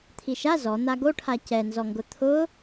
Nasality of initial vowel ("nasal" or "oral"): oral